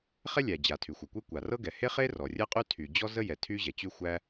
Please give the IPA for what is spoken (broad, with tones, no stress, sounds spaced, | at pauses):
χ ɛ˥ lʲ æ˩ d͡ʑ a˩ tʰ y˩ xʷ ɤ˩ kʷ e˥ kʷ a˩ r ɤ˥ ɡ ɛ˩ h e˥ χ e˥ r ɔ˩ rʲ ɜ˥ qʼ y˥ tʰ y˩ d͡ʑ ɔ˥ z ə˥ j ɛ˩ tʰ y˥ ʑ ɛ˩ t͡ɕ y˥ xʷ æ˥